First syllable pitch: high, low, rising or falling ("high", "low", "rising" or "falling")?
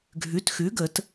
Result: rising